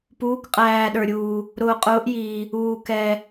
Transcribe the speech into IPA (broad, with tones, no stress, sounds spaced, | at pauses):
p uː˨˦ k qʼ æː˨ ɗ ə˞˨ ɾʲ uː˨ | ɾ ʊː˨ qʼ ʊː˨˦ ʔ j iː˨ | uː˨ k ɛ˨